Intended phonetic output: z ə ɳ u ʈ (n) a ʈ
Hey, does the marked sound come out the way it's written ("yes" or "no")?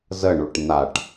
yes